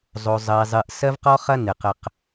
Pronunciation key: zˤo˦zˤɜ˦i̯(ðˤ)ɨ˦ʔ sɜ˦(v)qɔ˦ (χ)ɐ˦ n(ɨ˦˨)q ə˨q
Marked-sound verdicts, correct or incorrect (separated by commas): incorrect, correct, correct, incorrect